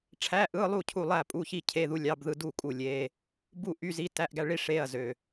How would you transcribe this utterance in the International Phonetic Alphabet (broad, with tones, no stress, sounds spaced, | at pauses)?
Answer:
ʈ͡ʂʰ æ˧˥˧ ʔ ɯ˧˥˧ lˠ u˥˨ cʰ u˥˨ lˠ æ˥˨ pʼ u˧˥˧ ç i˥˨ cʰ e˧˥˧ ð u˧˥˧ lʲ ɑ˧˥˧ b ð ɯ˥˨ d u˥˨ kʼ u˥˨ lʲ e˧˥˧ | b u˥˨ ʔ y˧˥˧ z i˧˥˧ t æ˧˥˧ ʔ ɡ æ˥˨ ɭ i˧˥˧ ʂ e˧˥˧ ɐ̯ z ø˧˥˧